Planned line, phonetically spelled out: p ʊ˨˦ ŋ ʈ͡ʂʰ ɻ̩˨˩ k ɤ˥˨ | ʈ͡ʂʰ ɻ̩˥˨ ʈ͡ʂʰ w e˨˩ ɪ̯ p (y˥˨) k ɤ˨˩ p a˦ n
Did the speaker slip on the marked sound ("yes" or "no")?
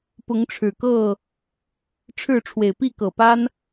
yes